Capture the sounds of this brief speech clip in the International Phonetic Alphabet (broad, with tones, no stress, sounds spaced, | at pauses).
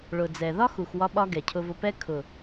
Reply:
ɭ ʊ˨ d͡z ɛ˨ ð ɒ˦ x u˨ x w ɒ˧ ɓ ɒ˧ ɡ ɛ˨ cʰ ʊ˧ v ʊ˧ p ɛ˦ kʰ ʊ˨